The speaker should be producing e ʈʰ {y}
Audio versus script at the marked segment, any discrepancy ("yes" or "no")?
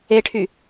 no